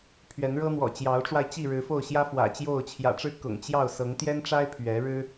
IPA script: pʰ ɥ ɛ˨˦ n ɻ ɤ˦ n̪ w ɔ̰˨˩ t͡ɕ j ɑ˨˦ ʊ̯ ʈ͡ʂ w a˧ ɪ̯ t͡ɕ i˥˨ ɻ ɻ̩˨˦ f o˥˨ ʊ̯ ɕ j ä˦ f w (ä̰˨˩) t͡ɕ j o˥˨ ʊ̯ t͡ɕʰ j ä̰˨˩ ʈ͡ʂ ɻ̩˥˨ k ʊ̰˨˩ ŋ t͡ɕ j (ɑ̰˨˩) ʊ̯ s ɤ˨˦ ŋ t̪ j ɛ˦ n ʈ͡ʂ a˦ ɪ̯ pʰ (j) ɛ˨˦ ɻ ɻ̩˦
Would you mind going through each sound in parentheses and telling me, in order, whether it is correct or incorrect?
correct, incorrect: ɑ˥˨, incorrect: ɥ

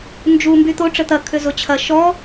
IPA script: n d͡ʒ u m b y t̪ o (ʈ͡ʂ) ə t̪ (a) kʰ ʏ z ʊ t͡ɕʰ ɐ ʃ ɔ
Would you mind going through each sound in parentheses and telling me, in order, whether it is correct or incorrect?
correct, incorrect: ɐ

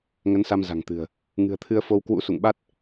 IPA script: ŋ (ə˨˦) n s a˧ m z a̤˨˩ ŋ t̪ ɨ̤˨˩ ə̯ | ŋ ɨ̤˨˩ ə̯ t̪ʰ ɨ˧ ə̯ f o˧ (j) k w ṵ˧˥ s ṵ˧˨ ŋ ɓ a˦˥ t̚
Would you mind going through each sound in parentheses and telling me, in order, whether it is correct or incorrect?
correct, incorrect: w

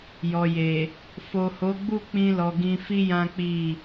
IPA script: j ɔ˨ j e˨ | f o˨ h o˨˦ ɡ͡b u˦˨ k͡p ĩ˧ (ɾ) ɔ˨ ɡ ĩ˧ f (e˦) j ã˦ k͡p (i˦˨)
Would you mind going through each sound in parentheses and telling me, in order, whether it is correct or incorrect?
incorrect: l, incorrect: i˦, correct

